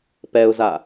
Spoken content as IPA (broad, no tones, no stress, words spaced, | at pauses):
pɛʊ̯za